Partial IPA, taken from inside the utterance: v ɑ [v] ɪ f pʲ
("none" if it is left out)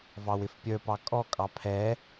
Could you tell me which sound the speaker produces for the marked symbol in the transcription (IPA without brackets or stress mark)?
w